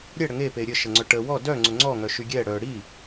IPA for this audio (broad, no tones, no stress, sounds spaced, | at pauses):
ɾʲ ɛ ɽ ə ŋ e p e ɾʲ ə ʃ ə ŋ͡ǀ œ ʈ ə w ɔ d œ ŋ͡ǀ ʊ ŋ͡ǀ ɔ ŋ œ ʃ y ɡʲ ɛ ɽ œ ɽ i